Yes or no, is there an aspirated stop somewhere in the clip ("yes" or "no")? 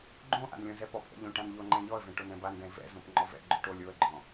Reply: no